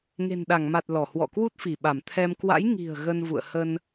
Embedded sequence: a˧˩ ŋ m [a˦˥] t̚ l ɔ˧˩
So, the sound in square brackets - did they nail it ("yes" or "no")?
no